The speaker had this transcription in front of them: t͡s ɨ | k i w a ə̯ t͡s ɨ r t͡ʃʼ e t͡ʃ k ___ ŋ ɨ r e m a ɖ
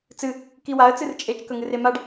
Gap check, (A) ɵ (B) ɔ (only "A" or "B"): A